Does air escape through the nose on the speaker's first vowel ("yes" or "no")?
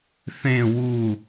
yes